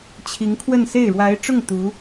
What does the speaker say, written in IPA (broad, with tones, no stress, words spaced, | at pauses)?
t͡ɕʰi˧˥ŋkʰwə˥˧nse˥˩ɪ̯ ɻwa˧˥ɪ̯ʈ͡ʂʊ˥˩ŋ t̪u˧˥